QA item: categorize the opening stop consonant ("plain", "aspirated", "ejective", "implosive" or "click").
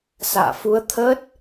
aspirated